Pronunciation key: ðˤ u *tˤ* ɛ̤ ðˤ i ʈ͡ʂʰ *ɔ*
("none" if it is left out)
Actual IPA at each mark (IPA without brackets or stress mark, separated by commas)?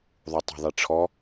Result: tˤ, ɔ